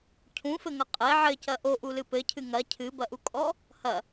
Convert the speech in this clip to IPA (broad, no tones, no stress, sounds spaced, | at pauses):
cʰ ũ f ɘ ŋ ɐ qʼ e ʕ ɘ c ɐ ʔ o ʔ u l ɨ p ɘ cʰ ɨ ŋ ɐ cʰ ɨ b ɐ ʔ u kʼ ɔ | h ɐ